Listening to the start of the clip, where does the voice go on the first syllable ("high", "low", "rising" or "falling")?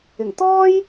low